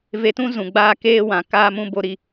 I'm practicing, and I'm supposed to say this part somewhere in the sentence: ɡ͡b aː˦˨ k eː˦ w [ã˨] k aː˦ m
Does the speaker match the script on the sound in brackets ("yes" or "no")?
yes